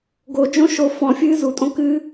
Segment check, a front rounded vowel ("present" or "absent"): absent